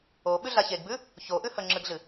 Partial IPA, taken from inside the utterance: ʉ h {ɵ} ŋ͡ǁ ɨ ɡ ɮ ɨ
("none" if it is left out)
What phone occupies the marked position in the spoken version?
ɵ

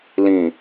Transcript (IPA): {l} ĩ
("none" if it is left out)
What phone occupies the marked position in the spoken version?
l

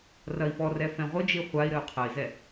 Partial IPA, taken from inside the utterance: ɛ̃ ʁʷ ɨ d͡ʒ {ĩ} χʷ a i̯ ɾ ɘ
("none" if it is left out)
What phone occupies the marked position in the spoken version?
i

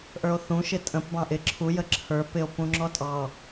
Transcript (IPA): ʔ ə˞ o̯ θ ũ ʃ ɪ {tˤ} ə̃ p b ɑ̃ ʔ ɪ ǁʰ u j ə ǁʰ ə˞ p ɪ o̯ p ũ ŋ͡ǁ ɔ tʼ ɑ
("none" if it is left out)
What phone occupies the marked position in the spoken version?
tʼ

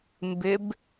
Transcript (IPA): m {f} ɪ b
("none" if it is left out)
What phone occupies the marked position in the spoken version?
b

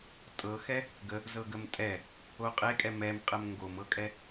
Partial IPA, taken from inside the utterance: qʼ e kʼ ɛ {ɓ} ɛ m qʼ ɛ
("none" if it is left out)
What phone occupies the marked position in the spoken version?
m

